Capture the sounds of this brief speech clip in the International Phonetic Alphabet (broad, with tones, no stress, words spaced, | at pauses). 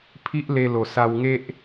pʰi˦ʔle˧lo˨˩ sa˧wŋe˦ʔ